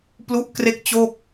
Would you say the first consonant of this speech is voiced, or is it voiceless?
voiceless